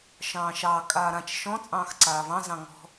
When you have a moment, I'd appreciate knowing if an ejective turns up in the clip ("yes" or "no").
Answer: yes